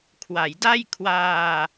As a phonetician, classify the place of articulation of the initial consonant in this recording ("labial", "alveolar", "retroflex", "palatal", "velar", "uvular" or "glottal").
velar